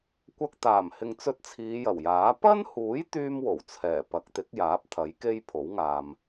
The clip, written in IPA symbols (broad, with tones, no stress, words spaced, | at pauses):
kʷɐ˨k̚ t̪aː˨˩mhɪ˨ŋt͡sɵ˧t̚ t͡sʰiː˨˧jɐ˨˩wjaː˨˥ pɐ˥nhuː˨˥j t̪yː˥mwo˨˩wt͡sʰɛː˨˩ pɐ˨˥k̚t̪ɪ˨˥k̚jaː˨˥p̚ t̪ʰɐ˨˥jke˥jpʰo˨˥wŋaː˨m